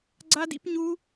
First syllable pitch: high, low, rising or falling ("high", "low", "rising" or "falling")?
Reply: high